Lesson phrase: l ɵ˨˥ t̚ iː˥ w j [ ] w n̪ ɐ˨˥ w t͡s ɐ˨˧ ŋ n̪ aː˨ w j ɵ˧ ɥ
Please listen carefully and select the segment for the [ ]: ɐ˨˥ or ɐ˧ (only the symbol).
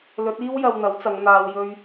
ɐ˧